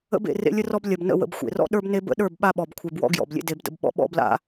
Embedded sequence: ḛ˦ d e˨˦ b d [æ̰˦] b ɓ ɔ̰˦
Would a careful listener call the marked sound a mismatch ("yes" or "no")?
yes